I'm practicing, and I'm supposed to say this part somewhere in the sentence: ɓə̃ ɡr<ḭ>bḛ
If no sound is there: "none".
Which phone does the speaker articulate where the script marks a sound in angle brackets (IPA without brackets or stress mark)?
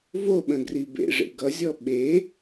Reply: i